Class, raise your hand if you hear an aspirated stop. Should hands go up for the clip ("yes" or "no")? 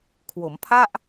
yes